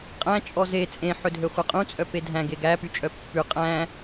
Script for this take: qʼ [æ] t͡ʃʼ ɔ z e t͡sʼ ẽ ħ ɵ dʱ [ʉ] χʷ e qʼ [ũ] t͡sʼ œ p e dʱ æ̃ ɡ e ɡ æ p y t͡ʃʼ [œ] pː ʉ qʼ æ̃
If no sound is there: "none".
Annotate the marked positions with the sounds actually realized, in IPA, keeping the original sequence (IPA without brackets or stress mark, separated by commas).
æ̃, ø, ũ, œ